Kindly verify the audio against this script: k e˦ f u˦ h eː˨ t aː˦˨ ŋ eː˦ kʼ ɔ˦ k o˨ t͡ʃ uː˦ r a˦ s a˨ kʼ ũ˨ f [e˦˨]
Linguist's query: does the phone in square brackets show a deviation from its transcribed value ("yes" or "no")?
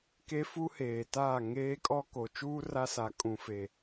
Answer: yes